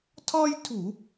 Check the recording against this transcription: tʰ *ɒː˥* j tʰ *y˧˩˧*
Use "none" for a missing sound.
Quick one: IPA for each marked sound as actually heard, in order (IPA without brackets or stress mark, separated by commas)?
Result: ɒː˥, u˧˩˧